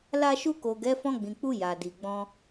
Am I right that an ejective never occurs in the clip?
yes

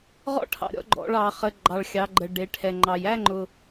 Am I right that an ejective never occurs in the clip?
yes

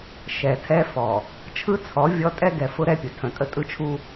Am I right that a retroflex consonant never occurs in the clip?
yes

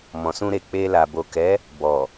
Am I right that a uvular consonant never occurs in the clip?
yes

